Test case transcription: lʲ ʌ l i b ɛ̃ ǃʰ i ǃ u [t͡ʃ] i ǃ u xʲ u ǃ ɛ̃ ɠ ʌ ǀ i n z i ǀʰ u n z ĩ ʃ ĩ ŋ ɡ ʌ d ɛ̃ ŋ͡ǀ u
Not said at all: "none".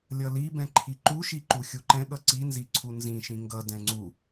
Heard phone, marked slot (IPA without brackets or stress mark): ʃ